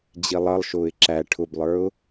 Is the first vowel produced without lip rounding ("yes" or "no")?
yes